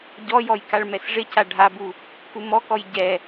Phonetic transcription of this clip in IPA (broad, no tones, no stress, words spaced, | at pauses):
ɟɔjɔj kaɭmɛsʐɪca ɖʱabu | kumɔkɔj ɟɛ